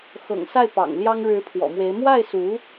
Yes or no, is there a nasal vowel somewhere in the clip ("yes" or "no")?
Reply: no